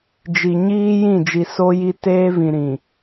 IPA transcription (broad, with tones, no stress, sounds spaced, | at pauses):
d͡ʒ i˨ ɲ iː˦ j ĩ˦˨ d͡ʒ i˨ s o˦ j i˦ t eː˦ v ĩ˨ ɾ ĩ˨